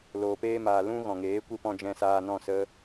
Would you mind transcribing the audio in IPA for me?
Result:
l oː˨ p eː˧ m aː˨ l ũ˧ ɣ ɔ̃˨ ŋ eː˨˦ kʷ i˧ p ɔ̃˧ d͡ʒ ɛ̃˧ s aː˧ n ɔ̃˦˨ s ə˦

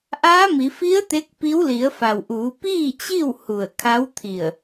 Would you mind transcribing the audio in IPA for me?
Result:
ʔ aː˧˥ m i˩˧ f i˧˥ ə̯ t̪ e˧˥ k̚ p i˧˥ w l i˩˧ ə̯ f a˩ w ʔ uː˩˧ p iː˥˨ t͡ɕ i˥˨ w h u˧˩ ə̯ kʰ a˧˥ w t̪ʰ i˧˩ ə̯

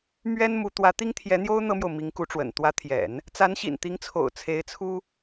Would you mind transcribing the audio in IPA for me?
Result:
m ɥ ɛ˥ n m u˧˥ t̪ w ä˧˥ t̪ i˥ ŋ t̪ʰ j ɛ˧˥ n̪ j o˥ ʊ̯ n̪ ɤ˥ m j o˨ ʊ̯ m i˧˥ ŋ k u˧˥ ʈ͡ʂ w ə̰˨˩ n t̪ w ä˧˥ t̪ʰ j ɛ̰˨˩˦ n | t͡s a˧˥ n ɕ ḭ˨˩ n t̪ i˧˥ ŋ t͡sʰ o̰˨˩ ʊ̯ t͡sʰ e˧˥ ɪ̯ t͡sʰ u˥

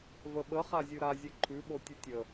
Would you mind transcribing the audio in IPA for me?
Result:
v ə ɓ ə χ a zʲ ʉ ɾ a zʲ e ǃʰ ʉ ɓ o tʲ ʉ tʲ ə

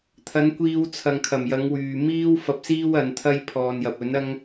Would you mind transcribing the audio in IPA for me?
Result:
t̪ʰ ɐ˨˧ n kʷ iː˧ w t͡sʰ ɐ˨ ŋ kʰ ɐ˨˩ m j ɐ˨˧ ŋ w yː˨ m iː˥ w f ɐ˧ p̚ s iː˥ w ɐ˨˧ n t̪ʰ ɐ˥ j pʰ ɔː˧ n j ɐ˨ p̚ ɵ˨˥ n ɐ˥ ŋ

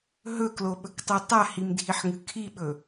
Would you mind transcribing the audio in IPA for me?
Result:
ɦ ɵ k l o ɓ ɵ k tˤ ʉ tˤ a h i m dʱ i ħ ŋ ɨ kʰ i ɓ ɵ

